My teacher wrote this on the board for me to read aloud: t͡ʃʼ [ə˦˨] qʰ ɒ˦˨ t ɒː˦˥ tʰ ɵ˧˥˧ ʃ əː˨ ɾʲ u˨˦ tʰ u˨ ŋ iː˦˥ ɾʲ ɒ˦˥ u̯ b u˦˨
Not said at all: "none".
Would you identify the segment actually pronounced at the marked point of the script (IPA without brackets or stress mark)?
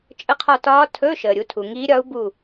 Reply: ə˧˥˧